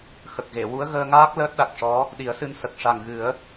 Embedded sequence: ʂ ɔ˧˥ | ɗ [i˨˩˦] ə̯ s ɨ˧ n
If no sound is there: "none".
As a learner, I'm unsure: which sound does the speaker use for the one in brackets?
i˨˩˦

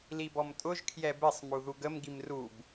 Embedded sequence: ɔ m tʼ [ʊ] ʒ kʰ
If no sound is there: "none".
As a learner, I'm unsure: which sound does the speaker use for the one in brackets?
ʊ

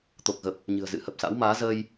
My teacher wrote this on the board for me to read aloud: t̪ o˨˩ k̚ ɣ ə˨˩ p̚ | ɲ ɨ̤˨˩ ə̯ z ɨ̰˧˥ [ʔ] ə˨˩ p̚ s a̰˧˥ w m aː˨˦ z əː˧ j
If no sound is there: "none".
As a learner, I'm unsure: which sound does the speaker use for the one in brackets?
h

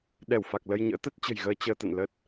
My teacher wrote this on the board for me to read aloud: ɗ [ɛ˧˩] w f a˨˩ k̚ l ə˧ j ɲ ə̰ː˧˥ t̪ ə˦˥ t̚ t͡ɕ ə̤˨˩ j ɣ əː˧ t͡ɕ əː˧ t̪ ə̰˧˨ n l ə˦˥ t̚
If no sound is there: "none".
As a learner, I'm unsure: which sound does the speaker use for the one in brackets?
ɛ˧˩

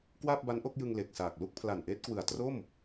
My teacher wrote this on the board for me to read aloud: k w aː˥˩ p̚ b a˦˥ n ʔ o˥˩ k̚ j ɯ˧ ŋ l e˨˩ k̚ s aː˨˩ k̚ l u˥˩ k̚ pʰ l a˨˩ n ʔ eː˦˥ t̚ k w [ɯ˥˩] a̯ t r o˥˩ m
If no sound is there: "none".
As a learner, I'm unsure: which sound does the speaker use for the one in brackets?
ɯ˨˩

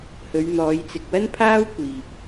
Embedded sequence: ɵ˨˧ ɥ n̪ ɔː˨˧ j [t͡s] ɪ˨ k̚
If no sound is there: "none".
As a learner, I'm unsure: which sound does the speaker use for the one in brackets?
t͡s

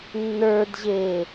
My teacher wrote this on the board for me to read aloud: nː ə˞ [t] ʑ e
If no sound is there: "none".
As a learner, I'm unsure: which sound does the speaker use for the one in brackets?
d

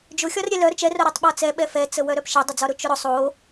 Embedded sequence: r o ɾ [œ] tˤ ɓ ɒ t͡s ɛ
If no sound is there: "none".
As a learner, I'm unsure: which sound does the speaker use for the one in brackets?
œ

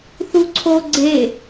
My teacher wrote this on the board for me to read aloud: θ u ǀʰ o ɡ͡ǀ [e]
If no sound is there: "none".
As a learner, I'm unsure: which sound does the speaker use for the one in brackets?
e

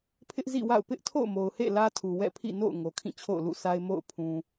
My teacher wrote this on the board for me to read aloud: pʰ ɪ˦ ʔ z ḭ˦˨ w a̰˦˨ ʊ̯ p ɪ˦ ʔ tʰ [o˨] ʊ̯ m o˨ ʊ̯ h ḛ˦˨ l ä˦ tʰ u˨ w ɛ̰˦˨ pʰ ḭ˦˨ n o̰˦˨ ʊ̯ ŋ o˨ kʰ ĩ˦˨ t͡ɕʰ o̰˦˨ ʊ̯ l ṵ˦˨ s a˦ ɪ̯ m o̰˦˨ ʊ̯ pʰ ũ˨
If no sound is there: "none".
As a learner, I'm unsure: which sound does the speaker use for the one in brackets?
o̰˦˨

